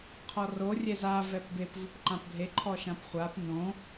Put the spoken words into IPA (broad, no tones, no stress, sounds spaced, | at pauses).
qʰ ɔ r o rʲ ɛ z a v ɛ p b e p v u p ǃ ã p bʱ e ǃʰ ɔ ʃ ã p χʷ a p n õ